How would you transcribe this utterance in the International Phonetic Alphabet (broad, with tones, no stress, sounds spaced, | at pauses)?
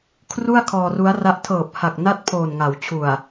kʰ r u˥˩ a̯ kʰ ɔː˧ r u˦˥ a̯ r a˦˥ ʔ tʰ ɤː˨˩ p̚ h a˨˩ k̚ n a˦˥ t̚ pʰ oː˨˩ n ŋ a˩˦ w t͡ɕʰ u˨˩ a̯